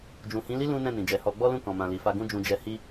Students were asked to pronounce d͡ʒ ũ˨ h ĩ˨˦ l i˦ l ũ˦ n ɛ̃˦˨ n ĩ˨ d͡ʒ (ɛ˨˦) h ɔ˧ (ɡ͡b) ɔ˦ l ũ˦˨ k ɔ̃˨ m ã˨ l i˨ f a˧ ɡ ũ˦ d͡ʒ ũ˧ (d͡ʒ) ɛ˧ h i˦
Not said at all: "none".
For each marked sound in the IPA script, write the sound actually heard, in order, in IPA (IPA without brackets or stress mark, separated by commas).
ɛ˨, ɡ͡b, d͡ʒ